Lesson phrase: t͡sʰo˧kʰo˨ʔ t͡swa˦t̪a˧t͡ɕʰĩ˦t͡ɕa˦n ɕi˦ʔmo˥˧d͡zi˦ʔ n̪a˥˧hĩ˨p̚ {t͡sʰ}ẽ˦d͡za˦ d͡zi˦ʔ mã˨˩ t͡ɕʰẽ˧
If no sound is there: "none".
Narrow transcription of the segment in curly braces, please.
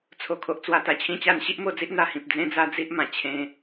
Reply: d͡z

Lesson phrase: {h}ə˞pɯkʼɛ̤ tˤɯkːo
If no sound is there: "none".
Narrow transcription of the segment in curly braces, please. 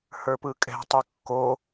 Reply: h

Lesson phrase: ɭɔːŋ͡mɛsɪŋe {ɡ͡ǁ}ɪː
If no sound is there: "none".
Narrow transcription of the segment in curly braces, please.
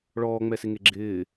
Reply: ɡ͡ǁ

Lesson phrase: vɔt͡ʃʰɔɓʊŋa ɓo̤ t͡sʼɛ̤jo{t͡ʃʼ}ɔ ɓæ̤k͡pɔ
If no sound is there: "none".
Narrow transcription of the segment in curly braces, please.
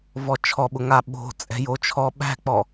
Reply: t͡ʃʰ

